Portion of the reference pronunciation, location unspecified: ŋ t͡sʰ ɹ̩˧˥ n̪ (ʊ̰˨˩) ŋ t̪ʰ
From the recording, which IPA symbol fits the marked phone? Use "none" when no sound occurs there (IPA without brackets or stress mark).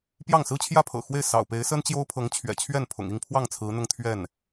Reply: ʊ˥˧